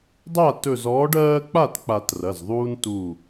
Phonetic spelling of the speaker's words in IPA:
dˤa˥˩tɵ˧˩zɔː˨˥ɖ ɜː˦k͡pa˥˩tk͡pa˨˩˦t rɐ˩˧˩zðˤuː˦ntuː˧˩

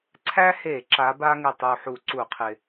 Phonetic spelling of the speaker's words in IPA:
ǀʰæ˥he˧˩˧ ǁa˨˥ba˥ ŋɪ˨˩tˤu˨˩ħu˧˩˧ ǀu˧˩˧qʰɪ˨˩

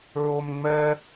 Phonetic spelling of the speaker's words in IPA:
ɹomŋ͡mɛ

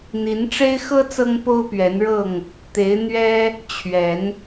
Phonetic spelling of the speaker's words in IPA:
n̪i˨˦nʈ͡ʂe˦ɪ̯xɤ˦ t͡sɤ˦ŋpo˦ʊ̯pɥɛ˨˦nɻɤ˥˨ŋ | t̪e˨˦ɪ̯ n̪ɥɛ˦ | t͡ɕʰɥɛ˨˦n

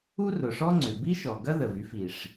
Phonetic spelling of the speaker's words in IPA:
u˥rʊ˩ʂɔ˥ŋ͡ǀʏ˩ bi˥ʃɔ˩ ɡɐ˥ðə˩vy˥f i˩ʂ

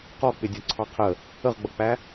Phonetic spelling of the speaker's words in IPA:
qɔ k͡pɪdʲɔǀʰɑqʰə | əʁɡ͡bʌk͡pæ

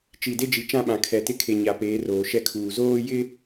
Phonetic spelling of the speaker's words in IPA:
t͡ʃi˨de˦d͡ʒi˨ t͡ʃã˦ɓã˨kʰɛ˨tɪ˦ kʰe˨ɲa˨ peː˨˦roː˨ʃɛ˦kʰuː˨ zoː˦jɪ˦

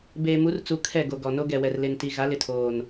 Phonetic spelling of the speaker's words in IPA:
beː˨mu˨˦rt͡su˨ kʰɛ˦˨ɡo˨ɡɔ˨ no˦ɡɛ˨wɛ˨r le˨nti˨ ɣa˨˦lɪ˨tʰoː˨n

